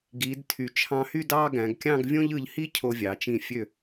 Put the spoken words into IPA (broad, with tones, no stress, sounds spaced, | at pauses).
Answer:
ɡ iː˩˧ d tʰ y˩˧ t͡ʃʰ ɑ̃˧ h y˥˧ d ɑː˥˧ ɡ æ̃˩˧ ɡ kʲ ɑ̃˥˧ ɡ vʲ õ˥ ʎ ɯ˧ ʎ h i˥ cʰ o˧ vʲ ɑ˩˧ t͡ʃ ĩ˧˩ fʲ ø˧˩